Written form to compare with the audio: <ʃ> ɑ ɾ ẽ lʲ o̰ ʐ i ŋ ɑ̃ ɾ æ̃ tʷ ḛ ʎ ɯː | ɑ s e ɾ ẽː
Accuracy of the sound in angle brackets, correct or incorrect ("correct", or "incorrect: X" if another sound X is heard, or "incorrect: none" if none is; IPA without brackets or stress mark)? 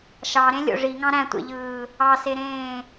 correct